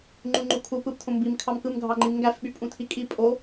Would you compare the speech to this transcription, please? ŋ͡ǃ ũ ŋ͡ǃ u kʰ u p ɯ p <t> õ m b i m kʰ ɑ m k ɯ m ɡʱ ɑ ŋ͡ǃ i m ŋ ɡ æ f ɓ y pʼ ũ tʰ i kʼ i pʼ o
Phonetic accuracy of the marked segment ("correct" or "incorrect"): incorrect